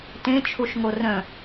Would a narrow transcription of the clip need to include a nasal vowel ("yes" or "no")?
yes